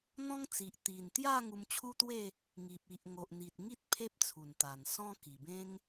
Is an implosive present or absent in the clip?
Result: absent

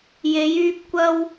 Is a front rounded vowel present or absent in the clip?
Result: present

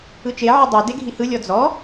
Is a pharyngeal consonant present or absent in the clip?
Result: present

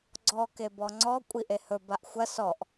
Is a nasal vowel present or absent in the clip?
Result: absent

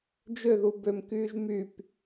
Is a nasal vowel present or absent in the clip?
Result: absent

